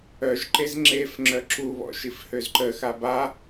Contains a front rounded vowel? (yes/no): yes